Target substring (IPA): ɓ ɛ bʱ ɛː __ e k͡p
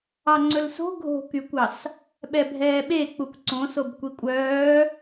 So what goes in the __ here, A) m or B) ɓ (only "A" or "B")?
B